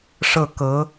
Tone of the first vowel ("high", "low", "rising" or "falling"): falling